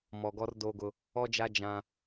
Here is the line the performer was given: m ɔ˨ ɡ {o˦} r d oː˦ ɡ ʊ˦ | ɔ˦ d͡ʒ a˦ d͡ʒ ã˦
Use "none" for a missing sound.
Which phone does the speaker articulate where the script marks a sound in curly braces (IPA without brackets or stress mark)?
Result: ɔ˦